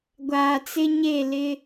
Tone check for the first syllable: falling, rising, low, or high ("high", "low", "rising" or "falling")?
low